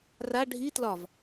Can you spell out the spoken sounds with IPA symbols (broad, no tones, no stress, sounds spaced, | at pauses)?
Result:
r a ɖʱ i t l ɒ v